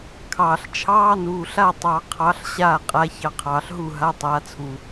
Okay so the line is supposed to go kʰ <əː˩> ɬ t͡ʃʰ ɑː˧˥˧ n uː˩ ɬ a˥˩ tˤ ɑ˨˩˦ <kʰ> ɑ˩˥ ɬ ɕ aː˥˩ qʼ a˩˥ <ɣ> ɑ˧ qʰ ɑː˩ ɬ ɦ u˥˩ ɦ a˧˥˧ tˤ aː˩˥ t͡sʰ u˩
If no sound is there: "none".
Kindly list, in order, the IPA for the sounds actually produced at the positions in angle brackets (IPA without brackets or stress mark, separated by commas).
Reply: ɑː˩, qʰ, ç